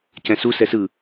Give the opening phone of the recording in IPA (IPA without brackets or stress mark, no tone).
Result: c